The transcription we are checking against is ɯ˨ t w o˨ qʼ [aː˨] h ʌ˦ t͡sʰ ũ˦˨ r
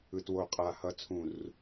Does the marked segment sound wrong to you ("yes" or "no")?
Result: no